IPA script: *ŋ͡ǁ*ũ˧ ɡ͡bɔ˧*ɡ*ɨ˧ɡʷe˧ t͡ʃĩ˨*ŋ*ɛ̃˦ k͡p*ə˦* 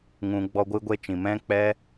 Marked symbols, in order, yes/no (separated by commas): no, no, no, no